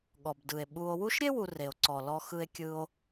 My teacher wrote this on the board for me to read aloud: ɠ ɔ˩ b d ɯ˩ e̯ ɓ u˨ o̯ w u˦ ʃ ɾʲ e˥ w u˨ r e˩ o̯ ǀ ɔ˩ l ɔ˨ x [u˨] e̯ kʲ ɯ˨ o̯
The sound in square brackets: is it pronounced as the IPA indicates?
no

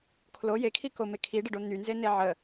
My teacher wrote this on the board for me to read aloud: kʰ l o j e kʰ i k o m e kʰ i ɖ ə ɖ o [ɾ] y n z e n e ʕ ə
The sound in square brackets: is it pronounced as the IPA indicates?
no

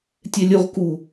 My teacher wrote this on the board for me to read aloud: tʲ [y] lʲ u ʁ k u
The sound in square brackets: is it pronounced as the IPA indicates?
no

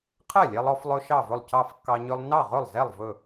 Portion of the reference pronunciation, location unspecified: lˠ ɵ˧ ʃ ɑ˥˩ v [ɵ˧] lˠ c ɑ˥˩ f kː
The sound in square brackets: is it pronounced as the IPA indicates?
no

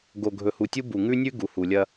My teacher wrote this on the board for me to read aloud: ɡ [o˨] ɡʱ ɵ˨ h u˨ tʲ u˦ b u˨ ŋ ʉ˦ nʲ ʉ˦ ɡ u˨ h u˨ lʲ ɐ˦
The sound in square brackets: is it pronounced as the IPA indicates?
yes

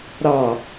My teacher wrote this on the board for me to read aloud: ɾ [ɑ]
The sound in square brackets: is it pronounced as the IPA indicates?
yes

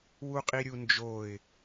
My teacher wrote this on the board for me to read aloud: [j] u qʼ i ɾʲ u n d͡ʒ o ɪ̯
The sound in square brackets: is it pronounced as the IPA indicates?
no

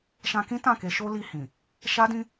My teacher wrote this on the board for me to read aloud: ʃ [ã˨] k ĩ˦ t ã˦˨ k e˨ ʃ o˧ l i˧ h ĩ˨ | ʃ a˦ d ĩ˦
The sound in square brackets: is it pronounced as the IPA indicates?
no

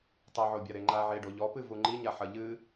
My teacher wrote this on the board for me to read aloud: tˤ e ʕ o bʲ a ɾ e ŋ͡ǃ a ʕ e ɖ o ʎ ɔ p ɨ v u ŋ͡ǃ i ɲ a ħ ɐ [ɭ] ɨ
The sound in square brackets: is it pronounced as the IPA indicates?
no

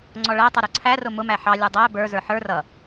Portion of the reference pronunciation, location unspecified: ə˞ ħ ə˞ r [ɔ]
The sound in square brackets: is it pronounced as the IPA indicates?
no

